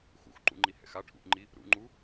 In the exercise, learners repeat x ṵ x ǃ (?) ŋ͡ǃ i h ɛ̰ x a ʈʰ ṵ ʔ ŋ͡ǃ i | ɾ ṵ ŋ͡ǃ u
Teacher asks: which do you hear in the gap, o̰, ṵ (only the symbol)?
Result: ṵ